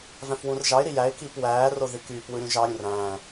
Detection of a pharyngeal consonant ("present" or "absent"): absent